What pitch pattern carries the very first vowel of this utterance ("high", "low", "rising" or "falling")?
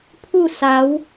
falling